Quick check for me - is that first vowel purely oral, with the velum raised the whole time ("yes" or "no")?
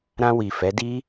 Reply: no